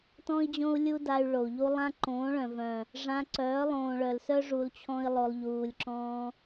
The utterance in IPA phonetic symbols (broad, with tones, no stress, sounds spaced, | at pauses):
t ɔ̃˦ i̯ d͡ʑ õ˦ u̯ lʲ u˦ d a˧ y̯ ɭ o˨ u̯ ʎ u˦ lˠ ã˦ ǃ õː˨˦ ɭ œ̃˨ v œ̃˨ | ʐ ã˧ ǀ œː˨˦ lˠ õː˨ ɭ œ˨ l s œ˦ ʐ u˧ l t͡ɕʰ ɔ̃˦ i̯ lˠ o˧ lˠ ʎ uː˨ lʲ ǁ ɔ̃˧